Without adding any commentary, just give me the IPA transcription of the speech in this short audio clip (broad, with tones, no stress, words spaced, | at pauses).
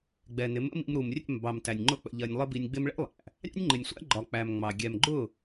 ɡ͡bɛ˨nɪ˨˦mə̰˦ mḭ˧mɾu˨mrʲɛ̰˦˨m bɑ˨mtæ˨nʲ ŋ͡ǃʊ˦k͡pə̰˧ʎɜ˧nʲ lˠə˦bi˧nʲɡ͡bɪ˦m ɭɛ̰˦lˠæ̰˨ | ɾʲɑ̰˦nʲŋ͡ǃɪ˨nʲsʷæ̰˦ ɡ͡ǃɒ˨ k͡pæ˨m ŋ͡mɑ˨ ɡʲɛ˨mɡ͡ǃʊ˦˨